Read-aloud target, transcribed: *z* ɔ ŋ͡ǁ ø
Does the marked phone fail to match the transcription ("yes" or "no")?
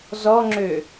no